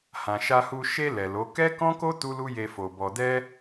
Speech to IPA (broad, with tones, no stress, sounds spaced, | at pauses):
h ã˨ ʃ a˧ h u˧ ʃ e˧ l ɛ˨ l o˨˦ k ɛ˦ k ɔ̃˦ k o˦ t u˦ l u˦ j e˧ f o˨ b ɔ˨ d ɛ˧